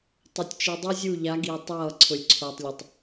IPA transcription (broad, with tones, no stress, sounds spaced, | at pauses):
tˤ ɵ˨ tʲ t͡ʃ i˨ dˤ i˦ zʲ u˦˨ ʎ a˨˦ ɡ i˨ ʊ̯ tˤ ʌː˦˨ ǀʰ ʊ˨ lʲ ǀʰ ʊː˨ tˤ lʲ ɘ˨ tˤ